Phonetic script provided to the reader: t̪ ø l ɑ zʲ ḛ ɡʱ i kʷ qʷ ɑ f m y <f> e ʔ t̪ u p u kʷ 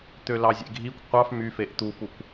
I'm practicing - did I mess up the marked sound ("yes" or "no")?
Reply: no